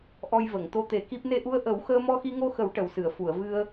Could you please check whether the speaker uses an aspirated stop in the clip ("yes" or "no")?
no